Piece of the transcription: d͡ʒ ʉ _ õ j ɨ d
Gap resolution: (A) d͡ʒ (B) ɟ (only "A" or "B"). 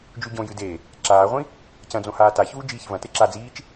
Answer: B